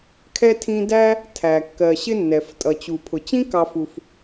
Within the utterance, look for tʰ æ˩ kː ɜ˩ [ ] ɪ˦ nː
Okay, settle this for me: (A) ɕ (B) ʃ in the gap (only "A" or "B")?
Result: A